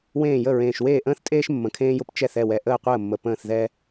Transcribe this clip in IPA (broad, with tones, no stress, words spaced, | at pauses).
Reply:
wẽː˥˩jə˥˩ ɹẽː˨˩ʃweː˥˩ʔə̃ː˥θtʼeː˥ʃ mːə̃˨˩kʰẽː˥jʊ˥p t͡ʃɛ˥˩θɛ˥˩wɛ˨˩ ʔəː˥˩qʷəː˥˩mːə˨˩ pə̃ː˥˩θðɛ˥